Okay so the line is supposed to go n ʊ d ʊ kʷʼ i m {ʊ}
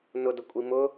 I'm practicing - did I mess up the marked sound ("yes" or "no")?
no